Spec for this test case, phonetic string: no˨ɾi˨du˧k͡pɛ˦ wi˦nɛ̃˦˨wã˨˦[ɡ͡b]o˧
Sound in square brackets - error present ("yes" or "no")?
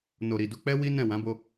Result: yes